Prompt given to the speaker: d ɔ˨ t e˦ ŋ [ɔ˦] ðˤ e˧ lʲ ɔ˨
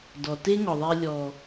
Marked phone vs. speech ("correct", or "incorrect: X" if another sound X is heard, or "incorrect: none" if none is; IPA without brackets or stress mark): incorrect: ɔ˨